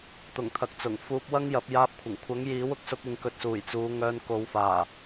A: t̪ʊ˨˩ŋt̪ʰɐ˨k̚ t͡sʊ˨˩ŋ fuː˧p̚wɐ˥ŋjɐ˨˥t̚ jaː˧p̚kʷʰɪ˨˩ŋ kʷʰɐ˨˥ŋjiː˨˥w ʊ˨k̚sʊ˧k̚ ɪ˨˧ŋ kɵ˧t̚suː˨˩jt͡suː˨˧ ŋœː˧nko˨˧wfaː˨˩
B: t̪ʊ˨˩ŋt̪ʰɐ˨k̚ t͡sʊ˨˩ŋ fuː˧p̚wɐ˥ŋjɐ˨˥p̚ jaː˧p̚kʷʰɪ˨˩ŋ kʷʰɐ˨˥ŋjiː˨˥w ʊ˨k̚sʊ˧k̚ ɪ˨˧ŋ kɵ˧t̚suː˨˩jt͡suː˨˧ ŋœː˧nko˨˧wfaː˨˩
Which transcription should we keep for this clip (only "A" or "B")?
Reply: B